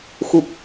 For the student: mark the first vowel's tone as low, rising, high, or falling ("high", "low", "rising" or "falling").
low